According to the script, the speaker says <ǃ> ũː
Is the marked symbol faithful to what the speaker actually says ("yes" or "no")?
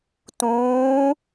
no